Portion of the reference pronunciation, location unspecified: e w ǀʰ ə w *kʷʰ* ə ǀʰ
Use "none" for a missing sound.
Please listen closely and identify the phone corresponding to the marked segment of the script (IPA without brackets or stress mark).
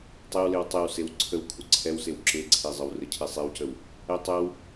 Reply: kʷʰ